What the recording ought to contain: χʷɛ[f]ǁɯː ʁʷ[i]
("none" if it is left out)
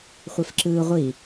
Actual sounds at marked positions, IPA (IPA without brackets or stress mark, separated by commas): f, i